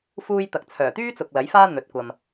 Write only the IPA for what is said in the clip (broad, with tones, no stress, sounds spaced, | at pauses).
f uː˧ j t̪ ɐ˨ k̚ t͡sʰ œː˨˩ t̪ yː˥ t͡s ʊ˨ k̚ l ɐ˨˥ j f aː˥ n̪ ɵ˨˥ t̚ kʷ ɐ˧ m